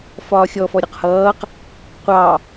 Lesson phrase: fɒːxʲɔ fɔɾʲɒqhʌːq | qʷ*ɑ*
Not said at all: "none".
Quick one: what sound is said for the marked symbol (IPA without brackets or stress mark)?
ɑ